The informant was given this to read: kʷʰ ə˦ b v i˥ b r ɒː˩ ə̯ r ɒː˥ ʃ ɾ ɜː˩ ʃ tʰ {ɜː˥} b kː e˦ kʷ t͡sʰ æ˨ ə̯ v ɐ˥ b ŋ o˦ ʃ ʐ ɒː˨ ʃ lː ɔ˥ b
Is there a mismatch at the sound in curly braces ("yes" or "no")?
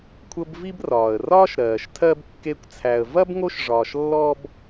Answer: yes